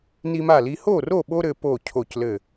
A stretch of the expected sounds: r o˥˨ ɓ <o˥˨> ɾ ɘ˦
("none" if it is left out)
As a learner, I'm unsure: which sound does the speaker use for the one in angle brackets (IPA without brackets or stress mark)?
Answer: o˦